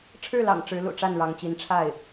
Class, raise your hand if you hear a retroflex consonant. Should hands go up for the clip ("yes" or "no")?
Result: yes